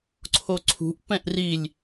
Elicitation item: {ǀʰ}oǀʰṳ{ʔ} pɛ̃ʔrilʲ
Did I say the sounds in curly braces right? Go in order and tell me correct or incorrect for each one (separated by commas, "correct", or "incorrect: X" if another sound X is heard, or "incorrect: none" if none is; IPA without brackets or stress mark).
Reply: correct, correct